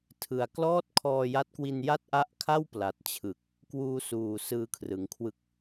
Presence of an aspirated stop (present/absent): present